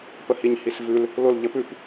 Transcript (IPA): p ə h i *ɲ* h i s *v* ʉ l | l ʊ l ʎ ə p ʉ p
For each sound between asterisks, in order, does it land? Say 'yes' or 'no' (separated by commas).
yes, yes